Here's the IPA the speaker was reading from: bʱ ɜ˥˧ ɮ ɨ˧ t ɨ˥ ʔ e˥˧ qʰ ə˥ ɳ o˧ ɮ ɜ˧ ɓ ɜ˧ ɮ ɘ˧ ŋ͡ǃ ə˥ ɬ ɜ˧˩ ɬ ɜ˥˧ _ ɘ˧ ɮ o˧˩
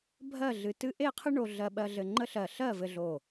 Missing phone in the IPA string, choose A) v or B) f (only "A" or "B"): A